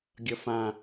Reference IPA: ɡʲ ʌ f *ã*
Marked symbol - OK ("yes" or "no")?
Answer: yes